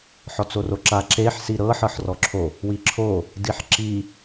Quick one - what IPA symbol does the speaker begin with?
ħ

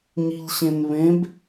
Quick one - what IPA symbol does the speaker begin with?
ɲ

